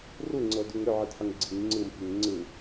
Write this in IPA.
r u ŋ͡ǀ ɤ d u ŋ ɾ ʏ ʕ ɯ d ħ ʏ ŋ ɡ͡ǀ i ŋ ŋ͡ǀ ɯ m f i ŋ ŋ͡ǀ ɯ

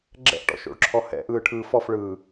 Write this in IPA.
ɡ͡ǁ ɛ̰ ʔ ʈ ɔ̰ ʃ o̰ ɭ ǁʰ ɔ h ɛ̰ ʔ ɯː ʈʰ ɯː f ɔ f ɭ ɯː

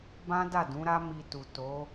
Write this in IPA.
b ã˦ d a˦˨ d ũ˨˦ ɾ a˦ m i˧ t u˨ t o˨˦

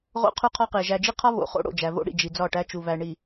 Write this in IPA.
ʁ o̰˦ qʰ u˦ qʰ ɒ˦ q e˨ ʒ æ˨ d͡ʒ i˦ qʰ ɒ˦ β o̰˨ χ o̰˦ ɽ o̰˨ d͡ʒ æ˨ v o̰˦ ɽ ḭ˨ d͡ʒ i˨ d͡z ɒ˦˨ ʈ æ˦ t͡ʃ u˨ v æ˨ ɳ i˨

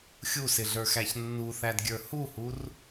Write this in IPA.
xʲ u s ɪ ɮ ə˞ x æ ç nː u θ æ d ɡʲ ə˞ h u h u r

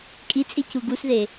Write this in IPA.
kʼ i t͡sʼ i c u ɡ u s ð e

